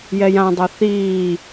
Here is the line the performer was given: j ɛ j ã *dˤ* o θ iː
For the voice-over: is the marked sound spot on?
yes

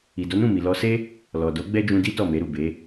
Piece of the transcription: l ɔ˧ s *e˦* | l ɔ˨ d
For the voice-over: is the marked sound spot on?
yes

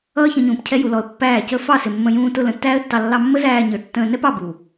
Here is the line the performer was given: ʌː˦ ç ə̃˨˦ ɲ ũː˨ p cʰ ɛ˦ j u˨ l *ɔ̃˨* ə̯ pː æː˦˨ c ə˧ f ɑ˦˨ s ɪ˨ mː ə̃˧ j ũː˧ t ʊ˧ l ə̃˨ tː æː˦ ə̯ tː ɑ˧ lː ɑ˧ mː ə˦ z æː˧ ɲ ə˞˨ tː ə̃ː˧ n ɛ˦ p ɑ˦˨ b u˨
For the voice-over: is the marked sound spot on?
no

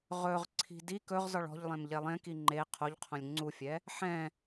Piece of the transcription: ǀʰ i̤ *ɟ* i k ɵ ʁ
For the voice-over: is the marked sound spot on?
no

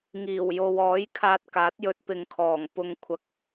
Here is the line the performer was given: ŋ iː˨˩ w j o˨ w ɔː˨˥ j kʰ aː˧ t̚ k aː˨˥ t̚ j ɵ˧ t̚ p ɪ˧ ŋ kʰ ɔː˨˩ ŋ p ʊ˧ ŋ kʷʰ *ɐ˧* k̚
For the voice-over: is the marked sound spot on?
yes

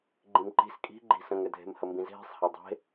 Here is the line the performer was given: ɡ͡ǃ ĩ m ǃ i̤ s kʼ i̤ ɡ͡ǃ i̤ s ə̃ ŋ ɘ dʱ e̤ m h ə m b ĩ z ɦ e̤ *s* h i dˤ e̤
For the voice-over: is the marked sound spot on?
no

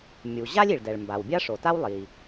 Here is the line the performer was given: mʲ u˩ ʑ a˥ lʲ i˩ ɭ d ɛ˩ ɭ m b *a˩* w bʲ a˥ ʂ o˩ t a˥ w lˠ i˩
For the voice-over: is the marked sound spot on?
yes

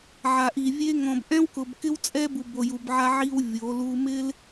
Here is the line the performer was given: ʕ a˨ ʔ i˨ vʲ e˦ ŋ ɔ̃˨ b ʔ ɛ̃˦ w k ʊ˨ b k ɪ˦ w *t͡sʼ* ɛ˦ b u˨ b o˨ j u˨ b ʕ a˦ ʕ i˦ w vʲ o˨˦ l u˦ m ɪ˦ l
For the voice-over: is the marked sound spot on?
yes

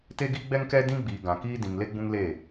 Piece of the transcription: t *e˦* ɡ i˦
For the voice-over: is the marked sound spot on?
yes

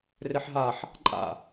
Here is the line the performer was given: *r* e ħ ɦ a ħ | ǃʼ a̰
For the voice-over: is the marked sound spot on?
yes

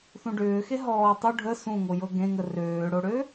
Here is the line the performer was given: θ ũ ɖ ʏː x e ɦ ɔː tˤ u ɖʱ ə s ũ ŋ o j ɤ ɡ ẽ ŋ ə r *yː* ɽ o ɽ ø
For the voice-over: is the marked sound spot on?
no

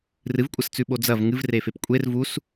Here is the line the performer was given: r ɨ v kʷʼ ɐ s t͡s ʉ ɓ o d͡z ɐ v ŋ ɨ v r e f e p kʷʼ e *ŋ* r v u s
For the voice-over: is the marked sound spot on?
no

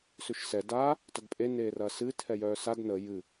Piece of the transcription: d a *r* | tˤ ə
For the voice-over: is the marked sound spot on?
no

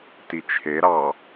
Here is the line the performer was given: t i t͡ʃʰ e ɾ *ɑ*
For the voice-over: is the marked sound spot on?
yes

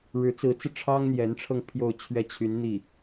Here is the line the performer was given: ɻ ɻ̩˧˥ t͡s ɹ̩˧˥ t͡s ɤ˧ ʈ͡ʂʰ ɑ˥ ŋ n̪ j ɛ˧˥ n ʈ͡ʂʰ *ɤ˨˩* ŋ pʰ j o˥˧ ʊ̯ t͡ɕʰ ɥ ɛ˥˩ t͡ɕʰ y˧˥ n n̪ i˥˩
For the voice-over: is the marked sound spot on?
no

